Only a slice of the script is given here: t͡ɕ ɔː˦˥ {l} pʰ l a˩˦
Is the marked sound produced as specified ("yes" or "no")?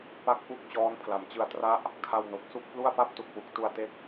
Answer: no